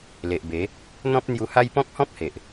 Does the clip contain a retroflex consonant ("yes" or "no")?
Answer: no